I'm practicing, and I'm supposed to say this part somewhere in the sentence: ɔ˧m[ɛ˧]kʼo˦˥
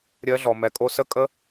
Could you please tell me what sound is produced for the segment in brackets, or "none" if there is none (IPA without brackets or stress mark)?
ɛ˧